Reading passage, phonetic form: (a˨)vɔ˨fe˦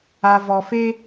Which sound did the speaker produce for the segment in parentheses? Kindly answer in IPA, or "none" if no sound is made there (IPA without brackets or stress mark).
a˨